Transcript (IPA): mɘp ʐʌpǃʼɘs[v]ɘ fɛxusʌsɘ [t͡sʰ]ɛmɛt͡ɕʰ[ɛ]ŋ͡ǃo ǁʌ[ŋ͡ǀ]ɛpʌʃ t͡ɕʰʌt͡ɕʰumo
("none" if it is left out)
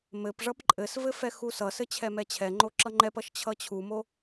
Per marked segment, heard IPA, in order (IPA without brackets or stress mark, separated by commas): v, t͡ɕʰ, ɛ, ŋ͡ǃ